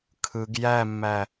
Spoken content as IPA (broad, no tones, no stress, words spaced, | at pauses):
kʰɯɡ jæmːæ